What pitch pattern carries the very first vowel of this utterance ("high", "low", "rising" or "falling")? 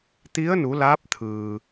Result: rising